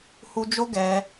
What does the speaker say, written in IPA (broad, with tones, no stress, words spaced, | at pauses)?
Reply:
hu˧d͡ʒo˦ɡɛ˧